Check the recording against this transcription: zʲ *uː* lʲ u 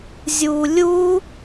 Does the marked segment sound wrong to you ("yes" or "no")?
no